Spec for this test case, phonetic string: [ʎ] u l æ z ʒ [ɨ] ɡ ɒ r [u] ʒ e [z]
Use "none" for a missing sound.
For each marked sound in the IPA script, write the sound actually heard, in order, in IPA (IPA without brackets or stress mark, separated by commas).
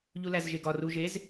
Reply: ʎ, e, u, z